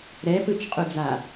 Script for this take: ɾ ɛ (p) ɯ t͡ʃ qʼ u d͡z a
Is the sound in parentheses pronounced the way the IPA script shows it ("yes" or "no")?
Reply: yes